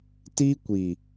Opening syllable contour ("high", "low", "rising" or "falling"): high